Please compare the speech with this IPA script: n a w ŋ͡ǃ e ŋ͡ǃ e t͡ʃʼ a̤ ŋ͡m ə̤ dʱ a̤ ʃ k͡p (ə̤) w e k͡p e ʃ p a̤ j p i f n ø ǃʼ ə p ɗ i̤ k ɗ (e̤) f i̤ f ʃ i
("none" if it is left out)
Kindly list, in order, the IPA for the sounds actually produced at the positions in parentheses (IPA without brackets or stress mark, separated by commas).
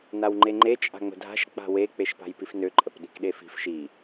a̤, e